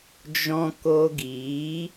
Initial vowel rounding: rounded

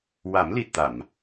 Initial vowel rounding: unrounded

